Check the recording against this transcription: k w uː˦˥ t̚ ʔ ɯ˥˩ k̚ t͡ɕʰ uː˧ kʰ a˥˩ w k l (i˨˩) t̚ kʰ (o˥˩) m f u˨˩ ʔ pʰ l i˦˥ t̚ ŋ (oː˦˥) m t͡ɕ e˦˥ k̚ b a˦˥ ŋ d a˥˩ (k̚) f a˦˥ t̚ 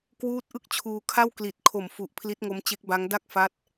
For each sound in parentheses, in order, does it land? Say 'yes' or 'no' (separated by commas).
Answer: yes, no, no, yes